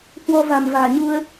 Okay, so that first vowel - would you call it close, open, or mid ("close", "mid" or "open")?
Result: mid